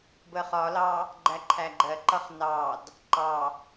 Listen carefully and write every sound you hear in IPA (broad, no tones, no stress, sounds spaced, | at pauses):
b ə χ ɒ l ɑ | ɡ͡ǃ æ ǃʰ æ ɡ͡ǃ ɜ ǃ ʌ χ n ɑ d | ǃ ɑ